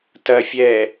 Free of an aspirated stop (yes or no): yes